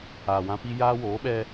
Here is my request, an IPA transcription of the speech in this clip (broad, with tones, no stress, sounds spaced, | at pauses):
aː˨ w ã˦ p i˦ j aː˦ w oː˨˦ ɓ ɛ˦